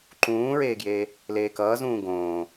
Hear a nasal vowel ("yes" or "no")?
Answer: yes